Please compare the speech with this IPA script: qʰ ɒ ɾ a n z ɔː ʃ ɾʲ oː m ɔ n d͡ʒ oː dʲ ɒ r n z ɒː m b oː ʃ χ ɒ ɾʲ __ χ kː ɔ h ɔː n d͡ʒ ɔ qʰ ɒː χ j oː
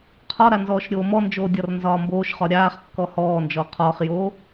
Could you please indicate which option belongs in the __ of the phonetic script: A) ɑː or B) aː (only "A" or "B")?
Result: B